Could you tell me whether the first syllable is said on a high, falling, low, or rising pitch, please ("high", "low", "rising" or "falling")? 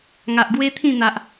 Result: low